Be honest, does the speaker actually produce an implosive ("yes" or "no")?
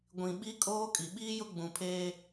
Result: yes